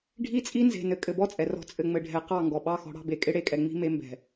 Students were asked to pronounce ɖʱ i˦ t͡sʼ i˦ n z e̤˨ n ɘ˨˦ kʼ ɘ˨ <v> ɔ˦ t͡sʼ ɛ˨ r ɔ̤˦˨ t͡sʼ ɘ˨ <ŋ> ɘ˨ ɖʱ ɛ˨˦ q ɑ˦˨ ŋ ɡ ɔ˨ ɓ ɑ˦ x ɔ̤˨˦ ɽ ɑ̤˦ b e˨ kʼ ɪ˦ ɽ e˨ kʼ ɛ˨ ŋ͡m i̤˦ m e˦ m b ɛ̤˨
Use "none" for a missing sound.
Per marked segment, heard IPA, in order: b, ŋ͡m

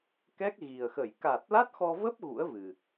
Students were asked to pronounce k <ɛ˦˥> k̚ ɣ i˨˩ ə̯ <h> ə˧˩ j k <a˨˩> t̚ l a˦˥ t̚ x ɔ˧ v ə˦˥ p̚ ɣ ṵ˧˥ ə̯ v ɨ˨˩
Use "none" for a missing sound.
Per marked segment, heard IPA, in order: ɛ˦˥, x, a˨˩

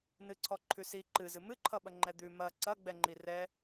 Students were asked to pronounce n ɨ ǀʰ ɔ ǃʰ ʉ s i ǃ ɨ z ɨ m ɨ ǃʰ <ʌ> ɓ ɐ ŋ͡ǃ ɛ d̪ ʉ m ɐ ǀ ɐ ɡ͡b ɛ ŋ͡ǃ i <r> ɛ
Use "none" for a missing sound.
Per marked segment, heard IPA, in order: ʌ, r

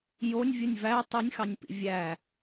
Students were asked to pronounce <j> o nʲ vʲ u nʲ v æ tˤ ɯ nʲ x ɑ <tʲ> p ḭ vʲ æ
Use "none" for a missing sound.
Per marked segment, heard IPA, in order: j, nʲ

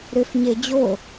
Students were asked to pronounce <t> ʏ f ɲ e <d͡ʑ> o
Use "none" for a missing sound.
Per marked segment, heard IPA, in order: ɾ, d͡ʑ

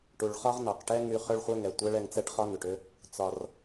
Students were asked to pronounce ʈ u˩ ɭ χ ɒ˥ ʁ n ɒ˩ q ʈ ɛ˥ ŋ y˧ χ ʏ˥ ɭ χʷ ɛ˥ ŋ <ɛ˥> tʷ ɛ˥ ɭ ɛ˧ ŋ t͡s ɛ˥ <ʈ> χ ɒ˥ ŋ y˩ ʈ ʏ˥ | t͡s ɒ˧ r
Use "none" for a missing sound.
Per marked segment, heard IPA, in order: ɛ˩, ʈ

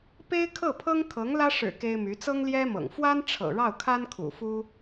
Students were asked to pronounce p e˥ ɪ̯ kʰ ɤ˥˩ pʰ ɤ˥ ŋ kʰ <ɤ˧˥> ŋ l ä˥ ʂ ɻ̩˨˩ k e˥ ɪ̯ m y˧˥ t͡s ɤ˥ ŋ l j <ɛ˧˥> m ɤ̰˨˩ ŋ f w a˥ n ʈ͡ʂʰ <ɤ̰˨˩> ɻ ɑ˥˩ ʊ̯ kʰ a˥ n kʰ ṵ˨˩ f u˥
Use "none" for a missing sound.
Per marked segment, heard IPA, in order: ɤ˧˥, ɛ˥, ɤ̰˨˩

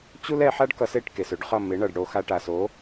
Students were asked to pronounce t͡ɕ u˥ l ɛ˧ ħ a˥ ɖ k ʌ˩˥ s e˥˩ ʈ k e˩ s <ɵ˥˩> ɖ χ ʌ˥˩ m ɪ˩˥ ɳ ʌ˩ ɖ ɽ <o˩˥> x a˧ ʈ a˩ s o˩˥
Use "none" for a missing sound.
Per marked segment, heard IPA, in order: ɵ˥, o˧

